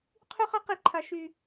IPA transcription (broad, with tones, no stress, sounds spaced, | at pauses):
qʰ y˥ χ a˥ q i˥ ǃʰ a˥ ʃ y˥